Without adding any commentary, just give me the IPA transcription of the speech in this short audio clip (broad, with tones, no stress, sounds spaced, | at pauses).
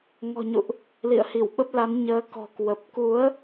ŋ ɔ̤˨˩ ɲ ṵ˧˨ ʔ | l ḭ˧˨ ə̯ h i˧˩ w ɓ ə˦˥ p̚ l a˨˦ n ɲ əː˨˦ k ɔ̤˨˩ k w ə˨˩ p̚ k u˨˦ ə̯